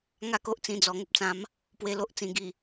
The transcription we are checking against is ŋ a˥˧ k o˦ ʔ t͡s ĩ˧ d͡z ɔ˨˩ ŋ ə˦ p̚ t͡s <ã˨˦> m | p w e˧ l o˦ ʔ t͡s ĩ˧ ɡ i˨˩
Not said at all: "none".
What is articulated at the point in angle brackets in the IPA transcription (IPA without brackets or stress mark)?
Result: ã˨˦